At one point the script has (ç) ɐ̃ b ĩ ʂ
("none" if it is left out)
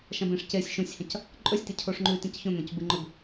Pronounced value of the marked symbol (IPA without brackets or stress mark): ʃ